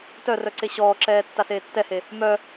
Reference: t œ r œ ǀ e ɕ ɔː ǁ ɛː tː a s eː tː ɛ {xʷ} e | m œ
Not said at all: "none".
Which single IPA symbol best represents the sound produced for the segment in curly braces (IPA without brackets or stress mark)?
h